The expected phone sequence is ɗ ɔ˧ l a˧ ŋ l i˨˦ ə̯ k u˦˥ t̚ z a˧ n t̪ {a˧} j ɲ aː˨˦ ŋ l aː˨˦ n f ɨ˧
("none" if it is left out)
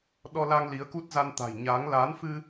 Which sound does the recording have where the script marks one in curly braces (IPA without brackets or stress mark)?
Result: a̤˨˩